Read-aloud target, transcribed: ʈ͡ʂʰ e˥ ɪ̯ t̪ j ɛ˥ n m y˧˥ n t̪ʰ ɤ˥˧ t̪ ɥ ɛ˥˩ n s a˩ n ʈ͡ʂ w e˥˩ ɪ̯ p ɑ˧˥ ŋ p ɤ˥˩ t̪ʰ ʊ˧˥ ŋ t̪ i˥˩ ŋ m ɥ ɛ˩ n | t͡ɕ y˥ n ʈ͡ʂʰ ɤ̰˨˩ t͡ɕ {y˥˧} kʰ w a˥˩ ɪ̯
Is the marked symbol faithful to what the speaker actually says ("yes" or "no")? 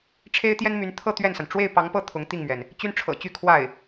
yes